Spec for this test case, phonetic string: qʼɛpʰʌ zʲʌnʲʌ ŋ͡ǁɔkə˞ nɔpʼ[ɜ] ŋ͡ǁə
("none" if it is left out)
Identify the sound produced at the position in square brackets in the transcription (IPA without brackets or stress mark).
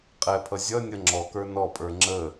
ə˞